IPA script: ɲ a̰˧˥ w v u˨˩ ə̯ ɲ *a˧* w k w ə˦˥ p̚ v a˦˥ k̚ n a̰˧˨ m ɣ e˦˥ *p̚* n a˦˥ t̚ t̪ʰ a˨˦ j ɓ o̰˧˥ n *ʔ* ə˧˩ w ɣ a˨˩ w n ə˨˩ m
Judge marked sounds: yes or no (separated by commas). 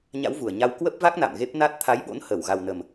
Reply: yes, yes, no